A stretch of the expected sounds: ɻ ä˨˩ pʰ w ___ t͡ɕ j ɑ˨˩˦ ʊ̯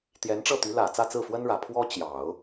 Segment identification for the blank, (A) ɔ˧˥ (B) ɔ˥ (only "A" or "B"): B